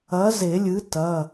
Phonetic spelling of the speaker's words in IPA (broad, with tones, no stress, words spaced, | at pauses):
ɐ˨˥ ze˨˩˦lʲɨ˨˥ tɐ˩˧˩